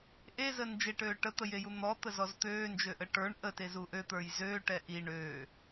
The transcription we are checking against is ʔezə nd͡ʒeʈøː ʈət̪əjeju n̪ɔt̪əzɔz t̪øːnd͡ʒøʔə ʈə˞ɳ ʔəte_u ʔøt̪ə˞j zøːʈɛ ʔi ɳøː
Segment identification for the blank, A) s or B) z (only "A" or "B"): B